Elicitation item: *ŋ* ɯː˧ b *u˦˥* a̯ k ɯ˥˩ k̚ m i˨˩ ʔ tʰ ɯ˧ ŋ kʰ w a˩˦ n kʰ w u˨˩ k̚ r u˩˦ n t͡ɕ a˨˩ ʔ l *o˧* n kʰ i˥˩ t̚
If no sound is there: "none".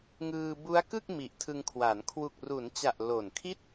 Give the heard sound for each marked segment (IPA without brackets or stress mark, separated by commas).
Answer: ŋ, u˦˥, o˨˩